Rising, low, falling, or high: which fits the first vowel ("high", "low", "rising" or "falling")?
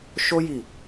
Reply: high